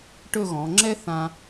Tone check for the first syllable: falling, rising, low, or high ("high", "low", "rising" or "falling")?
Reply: falling